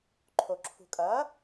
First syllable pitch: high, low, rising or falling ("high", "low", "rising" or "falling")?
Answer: low